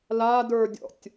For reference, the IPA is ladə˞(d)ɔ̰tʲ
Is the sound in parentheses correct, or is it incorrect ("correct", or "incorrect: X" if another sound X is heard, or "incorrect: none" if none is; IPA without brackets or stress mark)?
incorrect: dʲ